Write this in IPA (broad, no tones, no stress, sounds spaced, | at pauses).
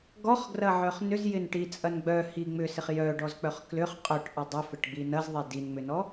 ɡ ɔ χ ɡ r ɐ ʕ œ χ n ʏ z j ɪ n ʈ i t͡sʼ ɐ n ɡ͡b œ h i ŋ͡m ʏ s ɪ χ j œ ɖ ɔ z k͡p œ χ k l ʏ χ qʼ œ ʈ ʔ ɐ dˤ ʏ f ɪ ʈ ɡ͡b i n ɐ z ðˤ e d i n ŋ͡m ʏ n ɔ